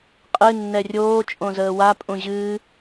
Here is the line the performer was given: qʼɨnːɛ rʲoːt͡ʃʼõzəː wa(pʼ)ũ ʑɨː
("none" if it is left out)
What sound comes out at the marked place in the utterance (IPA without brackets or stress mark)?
pʼ